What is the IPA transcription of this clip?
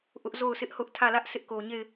ʔ ʊ˦ ʔ z o˦˨ ʊ̯ sʰ ɪ˦ ʔ h ʊ˦ ʔ tʰ ä˦˨ l ä˦ ʔ s ɪ˦ ʔ k o˨ ɲ e˦˨ ɪ̯

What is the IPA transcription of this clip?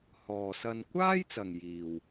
h ɔː˨ s ɐ˧ n kʷ aː˥ j t͡s ɐ˨ ŋ j iː˨ w

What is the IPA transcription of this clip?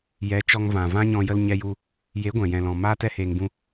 j ɛ˨˦ t͡ʃ ɔ˧ ŋ v ã˨ v ã˦ ɲ ɔ̃˧ j ə˧ l ɲ ɛ˧ j u˧ | j e˨˦ ɡʷ ɛ̃˨ j ɛ̃˨ l ɔ̃˨ m aː˦ t ɛ˦ h eː˧ ŋ b ũ˦

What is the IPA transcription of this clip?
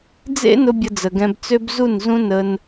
d͡z ḛ˦ n ʊ˧ bʲ ə˧ d͡z ə˨ ɡ ɛ̃˧ b t͡s ø˦ b z u˦˨ n z ũ˦ n ə˧ n

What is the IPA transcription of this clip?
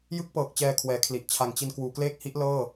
j ɯ˥˩ k̚ p ɤː˨˩ k̚ t͡ɕ ɛː˧ kʰ w ɛː˩˦ kʰ l i˨˩ ʔ t͡ɕʰ a˨˩ ŋ t͡ɕ i˧ n k w uː˩˦ k l eː˥˩ k̚ h i˦˥ ʔ l ɤː˥˩

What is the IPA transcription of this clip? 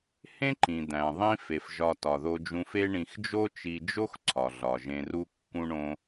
h ẽ˥ ǃ ĩ˩ d̪ æ̃˩ ðˤ ĩ˥ f e˩ f ʒ ɒ˧ t ɒ˩ ð o˧ d͡ʒ ũ˧ f e˥ ɳ ĩ˧ x d͡ʒ o˥ t͡ʃ i˧ d͡ʒ o˥ x ǀʰ ɒ˩ ɮ ɒ˩ ʒ ẽ˧ r u˥ kː ũ˥ ɳ õ˥

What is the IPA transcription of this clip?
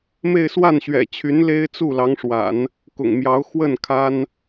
m e˥˧ ɪ̯ s w a˥˩ n ɕ ɥ ɛ̰˨˩ t͡ɕʰ y˧˥ n l e˥ ɪ̯ t͡s u˥˩ l ɑ˧˥ ŋ ʂ w a̰˨˩˦ n | k ʊ̰˨˩ ŋ m j ɑ˧˥ ʊ̯ x w ə˥˩ n kʰ a˥ n

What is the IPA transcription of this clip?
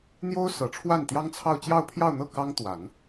n̪ j o˥ ʊ̯ s ɤ˨˩ ʈ͡ʂʰ w a˥˩ n t̪ j ɑ˥ ŋ t͡sʰ ɑ˥˧ ʊ̯ t͡ɕ j ɑ˥˧ ʊ̯ pʰ j ɑ˥˧ ʊ̯ n̪ ɤ˥˩ k ɑ˥ ŋ t̪ w a˨˩˦ n

